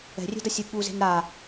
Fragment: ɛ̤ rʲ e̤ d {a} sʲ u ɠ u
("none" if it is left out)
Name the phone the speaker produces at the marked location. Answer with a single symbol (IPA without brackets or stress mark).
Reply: ʌ